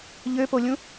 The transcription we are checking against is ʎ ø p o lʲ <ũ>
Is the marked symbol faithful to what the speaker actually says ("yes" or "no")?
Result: yes